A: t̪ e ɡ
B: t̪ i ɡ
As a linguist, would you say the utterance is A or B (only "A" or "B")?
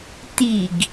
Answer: B